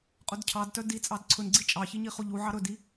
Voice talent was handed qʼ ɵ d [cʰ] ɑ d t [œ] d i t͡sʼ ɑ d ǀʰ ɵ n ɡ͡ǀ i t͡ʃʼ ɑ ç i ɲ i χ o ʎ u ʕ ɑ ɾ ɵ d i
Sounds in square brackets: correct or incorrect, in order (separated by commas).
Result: correct, correct